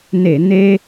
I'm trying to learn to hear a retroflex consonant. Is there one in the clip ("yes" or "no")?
no